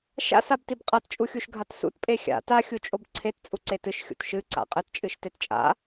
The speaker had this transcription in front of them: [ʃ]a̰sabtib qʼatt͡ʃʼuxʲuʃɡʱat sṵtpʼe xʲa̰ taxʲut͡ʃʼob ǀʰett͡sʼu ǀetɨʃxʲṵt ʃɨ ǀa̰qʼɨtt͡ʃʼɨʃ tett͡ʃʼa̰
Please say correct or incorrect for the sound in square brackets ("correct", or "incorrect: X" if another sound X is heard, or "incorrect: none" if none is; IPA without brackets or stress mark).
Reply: correct